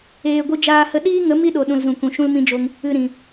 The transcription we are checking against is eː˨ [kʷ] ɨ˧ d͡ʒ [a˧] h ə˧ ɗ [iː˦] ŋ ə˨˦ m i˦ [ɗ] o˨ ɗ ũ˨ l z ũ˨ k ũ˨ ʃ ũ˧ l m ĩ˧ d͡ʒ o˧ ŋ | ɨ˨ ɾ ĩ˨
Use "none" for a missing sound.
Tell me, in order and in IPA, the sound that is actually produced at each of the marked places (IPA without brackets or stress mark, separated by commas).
ɡʷ, aː˧, iː˦, ɗ